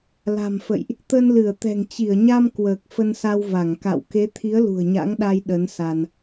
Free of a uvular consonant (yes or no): yes